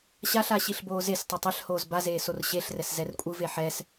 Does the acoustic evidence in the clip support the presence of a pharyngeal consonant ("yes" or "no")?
yes